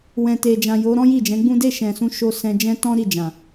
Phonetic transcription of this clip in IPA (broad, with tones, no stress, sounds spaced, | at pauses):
w ɛ̃˨ t e˨ d͡ʒ ã˨ j o˨˦ ɾ ɔ̃˦ j i˦˨ d͡ʒ ɛ̃˨˦ ɡ͡b ũ˦ d e˦˨ ʃ ɛ̃˨ s ũ˨˦ ʃ o˧ s ɛ̃˧ d͡ʒ ɛ̃˦ t ɔ̃˦ ɾ i˦˨ d͡ʒ ã˨